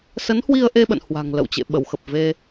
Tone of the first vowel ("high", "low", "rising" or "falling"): rising